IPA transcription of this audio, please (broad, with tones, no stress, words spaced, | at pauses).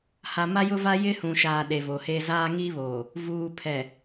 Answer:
ha˨ma˦jʊ˦va˦ jɪ˦hũ˨ʃaː˨ ɗe˨vo˨he˦ zaː˦ŋi˦βoː˨ | vuː˨pʰɛ˨